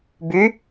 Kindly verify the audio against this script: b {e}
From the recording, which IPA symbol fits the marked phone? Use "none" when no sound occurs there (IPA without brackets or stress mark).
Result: y